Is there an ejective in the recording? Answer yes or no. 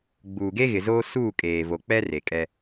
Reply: yes